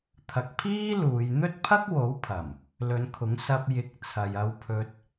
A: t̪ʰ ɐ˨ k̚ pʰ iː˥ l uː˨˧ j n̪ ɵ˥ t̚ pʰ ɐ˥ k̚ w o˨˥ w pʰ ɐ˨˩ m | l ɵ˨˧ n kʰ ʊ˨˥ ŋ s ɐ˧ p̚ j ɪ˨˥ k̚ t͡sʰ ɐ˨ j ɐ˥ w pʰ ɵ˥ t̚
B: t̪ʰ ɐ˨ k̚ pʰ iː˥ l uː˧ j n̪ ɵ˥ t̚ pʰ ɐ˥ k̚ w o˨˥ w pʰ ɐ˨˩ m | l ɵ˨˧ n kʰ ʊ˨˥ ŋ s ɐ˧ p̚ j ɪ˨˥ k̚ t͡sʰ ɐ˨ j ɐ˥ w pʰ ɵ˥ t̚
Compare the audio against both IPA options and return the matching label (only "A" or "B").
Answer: A